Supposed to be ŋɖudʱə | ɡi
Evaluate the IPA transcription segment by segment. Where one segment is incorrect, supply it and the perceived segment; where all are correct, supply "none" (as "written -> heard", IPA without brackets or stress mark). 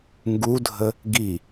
ɖ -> ɡ